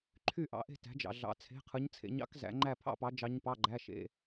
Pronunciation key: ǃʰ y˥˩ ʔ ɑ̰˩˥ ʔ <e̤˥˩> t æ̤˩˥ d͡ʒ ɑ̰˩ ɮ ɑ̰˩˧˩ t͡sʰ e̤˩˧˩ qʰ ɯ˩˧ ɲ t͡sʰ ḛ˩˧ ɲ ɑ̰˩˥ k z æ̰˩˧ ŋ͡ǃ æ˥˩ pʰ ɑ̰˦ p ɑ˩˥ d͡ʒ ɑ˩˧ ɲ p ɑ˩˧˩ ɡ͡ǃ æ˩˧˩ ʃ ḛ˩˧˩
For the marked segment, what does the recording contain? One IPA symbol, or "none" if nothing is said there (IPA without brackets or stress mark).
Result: e̤˥˩